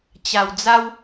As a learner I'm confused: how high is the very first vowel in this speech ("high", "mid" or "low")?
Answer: low